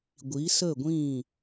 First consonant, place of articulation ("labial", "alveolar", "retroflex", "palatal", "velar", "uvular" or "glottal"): velar